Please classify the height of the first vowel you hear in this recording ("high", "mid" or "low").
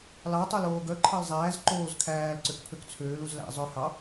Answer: low